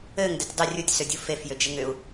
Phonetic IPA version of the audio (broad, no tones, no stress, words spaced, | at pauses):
ɘŋ dɘtʲdˤə rʲutʲsʏ dʲufefjʏ d͡ʒɘŋʏu̯